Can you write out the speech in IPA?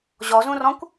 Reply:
ʑ ɔ z ũ r ɔ̃ kʷ

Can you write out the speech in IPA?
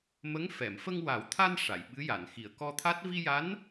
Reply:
m ə˧˥ ŋ f ɛ˨˩˨ m f ə˧ ŋ w a˨˩˦ w t̪ʰ a˧ n ʂ a˨˩˨ j ɓ ɨ˧˥ j a˨˩˨ n x i˨˩˨ ə̯ k ɔ˧ t̪ʰ a˦˥ t̚ v i˧ j a˧˥ n

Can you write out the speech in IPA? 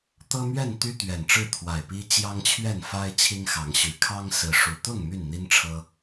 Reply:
t̪ ɤ˦ m ɥ ɛ˥˨ n t̪ y˦ t̪ ɥ ɛ˨˩ n ʈ͡ʂ ɻ̩˥˨ t̪ʰ w a˨˩ ɪ̯ p i˦ t͡ɕ j ɑ˦ ŋ t͡ɕʰ ɥ ɛ˥˨ n f a˦ ɪ̯ t͡ɕʰ i˦ ŋ x ɑ˨˦ ŋ ɕ y˨˦ kʰ ɑ˦ ŋ s ɹ̩˨˦ ʂ u˨˩ t̪ ʊ˥˨ ŋ m y˥˨ n n̪ i˦ n ʈ͡ʂʰ ɤ˦

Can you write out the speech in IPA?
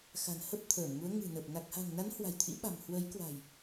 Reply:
x a̤˨˩ n h ə˦˥ p̚ t̪ʰ əː˧˩ m ŋ u˨˦ ə̯ ŋ ɨ̤˨˩ n ə˨˩ p̚ n a˨˩ k̚ h a̤˨˩ ŋ n a˨˦ n h w a̤˨˩ j t̪ʰ ḭ˧˥ ɓ a̤˨˩ m h w əː˨˦ j k w a̤˨˩ j

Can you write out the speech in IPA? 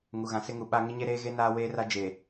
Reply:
ŋ u˨ ɣ ã˨ s ɪ˦ ŋ u˨ ɓ a˦ ŋ ɪ˦ ɲ e˦ ɾ eː˦ ɣ e˦ n aː˦ w eː˦ r a˦ d͡ʒ e˨

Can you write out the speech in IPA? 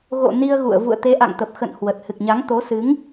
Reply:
ɣ o̰˧˨ n i˧ ə̯ ɣ ṵ˧˨ ə̯ v ṵ˧˨ ə̯ t̪ e˨˦ ʔ a̰˧˨ ŋ t̪ ə˨˩ p̚ x ə̰˧˨ n h w ə˨˩ t̚ h ɨ˨˩ k̚ ɲ a˨˦ ŋ t̪ o˨˦ s ɨ˨˦ ŋ

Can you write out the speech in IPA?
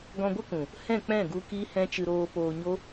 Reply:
ɡ ɔ̃˧ ɡʷ ə˦ k ũ˨ | h ɛ̃˦˨ k͡p ɛ̃˦˨ ɡ u˧ k i˦ h ɛ̃˦ t͡ʃ ɨ˧ ɾ oː˧ p oː˧ ɲ o˦

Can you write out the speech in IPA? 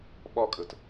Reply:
ɓ ɒ kʼ ə t

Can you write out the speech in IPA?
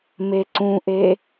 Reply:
m e ǀ ũ ʔ e

